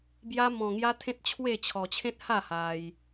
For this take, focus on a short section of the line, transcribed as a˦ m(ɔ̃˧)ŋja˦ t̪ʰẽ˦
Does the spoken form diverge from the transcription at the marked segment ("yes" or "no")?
no